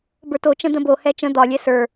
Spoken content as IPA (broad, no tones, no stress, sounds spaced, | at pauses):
b ə˞ t o t͡ʃ ə̃ d̪ ə̃ b o h ɛ t͡ʃ ə̃ d̪ ɒ lʲ ɛ s ə˞